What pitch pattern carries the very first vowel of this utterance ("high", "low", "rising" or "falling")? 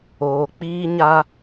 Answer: low